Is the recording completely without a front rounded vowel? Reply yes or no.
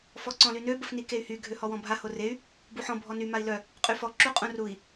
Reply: no